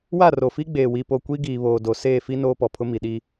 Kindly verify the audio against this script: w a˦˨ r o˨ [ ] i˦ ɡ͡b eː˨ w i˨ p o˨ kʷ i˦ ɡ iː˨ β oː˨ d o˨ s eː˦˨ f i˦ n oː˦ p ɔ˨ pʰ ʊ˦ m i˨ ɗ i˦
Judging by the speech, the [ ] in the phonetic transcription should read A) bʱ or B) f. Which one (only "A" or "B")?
B